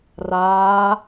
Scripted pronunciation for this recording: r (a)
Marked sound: incorrect: aː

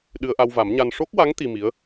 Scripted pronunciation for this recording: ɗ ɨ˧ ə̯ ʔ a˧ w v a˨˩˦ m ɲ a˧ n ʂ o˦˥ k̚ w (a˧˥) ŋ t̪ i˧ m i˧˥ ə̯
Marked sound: correct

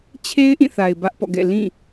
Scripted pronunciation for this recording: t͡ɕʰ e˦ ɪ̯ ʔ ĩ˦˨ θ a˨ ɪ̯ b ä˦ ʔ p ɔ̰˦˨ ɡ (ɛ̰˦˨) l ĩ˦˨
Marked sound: correct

